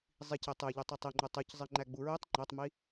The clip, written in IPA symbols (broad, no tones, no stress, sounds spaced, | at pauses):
zˤ i c e tˤ e ʎ u tˤ i tˤ i ŋ͡ǃ u tˤ u c zˤ i ŋ͡ǃ æ ɡ͡b u ɹ e tˤ ŋ͡ǃ æ tˤ m i